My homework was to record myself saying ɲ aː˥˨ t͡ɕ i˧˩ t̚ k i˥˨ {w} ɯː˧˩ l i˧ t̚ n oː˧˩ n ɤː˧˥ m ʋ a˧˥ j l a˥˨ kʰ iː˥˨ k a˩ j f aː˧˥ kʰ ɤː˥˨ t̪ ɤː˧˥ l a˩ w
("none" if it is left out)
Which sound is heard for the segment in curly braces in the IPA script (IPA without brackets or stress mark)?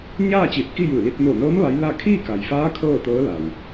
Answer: j